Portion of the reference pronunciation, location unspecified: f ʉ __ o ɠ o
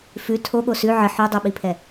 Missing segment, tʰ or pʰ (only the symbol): tʰ